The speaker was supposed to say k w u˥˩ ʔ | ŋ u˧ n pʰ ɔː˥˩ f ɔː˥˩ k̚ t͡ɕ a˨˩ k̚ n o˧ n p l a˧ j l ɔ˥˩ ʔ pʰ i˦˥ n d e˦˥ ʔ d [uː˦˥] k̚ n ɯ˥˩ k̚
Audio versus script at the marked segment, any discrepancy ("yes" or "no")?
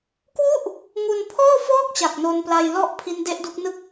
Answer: yes